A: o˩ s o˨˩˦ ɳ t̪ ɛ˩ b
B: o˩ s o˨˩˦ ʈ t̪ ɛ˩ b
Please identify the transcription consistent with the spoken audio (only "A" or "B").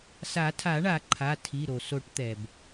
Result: B